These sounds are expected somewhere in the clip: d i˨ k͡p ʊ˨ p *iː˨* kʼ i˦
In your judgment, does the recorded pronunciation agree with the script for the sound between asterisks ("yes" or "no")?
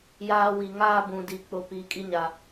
yes